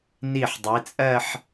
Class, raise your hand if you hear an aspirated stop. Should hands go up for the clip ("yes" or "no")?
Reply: no